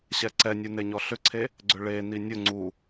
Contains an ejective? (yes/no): no